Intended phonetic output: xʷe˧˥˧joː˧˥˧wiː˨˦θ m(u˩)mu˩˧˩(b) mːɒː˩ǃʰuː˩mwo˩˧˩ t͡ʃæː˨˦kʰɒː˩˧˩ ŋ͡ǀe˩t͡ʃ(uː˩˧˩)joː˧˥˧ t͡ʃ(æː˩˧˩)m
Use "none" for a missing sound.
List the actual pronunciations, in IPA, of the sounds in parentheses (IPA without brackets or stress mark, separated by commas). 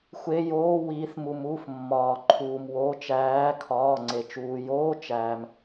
u˩, f, uː˩, æː˩